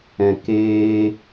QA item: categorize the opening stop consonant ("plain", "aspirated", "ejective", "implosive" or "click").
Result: plain